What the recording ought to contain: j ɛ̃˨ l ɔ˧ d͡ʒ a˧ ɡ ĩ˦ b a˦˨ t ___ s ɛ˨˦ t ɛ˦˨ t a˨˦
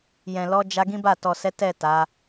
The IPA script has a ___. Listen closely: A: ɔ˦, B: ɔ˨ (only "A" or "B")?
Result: B